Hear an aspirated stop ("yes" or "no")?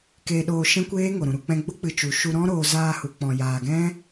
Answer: no